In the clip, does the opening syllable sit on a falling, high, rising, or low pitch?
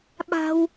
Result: high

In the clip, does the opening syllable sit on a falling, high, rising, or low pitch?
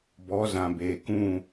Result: rising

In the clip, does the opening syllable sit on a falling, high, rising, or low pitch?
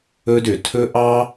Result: high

